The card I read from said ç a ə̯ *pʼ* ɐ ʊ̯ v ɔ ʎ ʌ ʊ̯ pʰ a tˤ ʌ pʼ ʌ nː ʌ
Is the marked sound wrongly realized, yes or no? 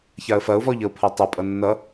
yes